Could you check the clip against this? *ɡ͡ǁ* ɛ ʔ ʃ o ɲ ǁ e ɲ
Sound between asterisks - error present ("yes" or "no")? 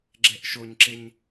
no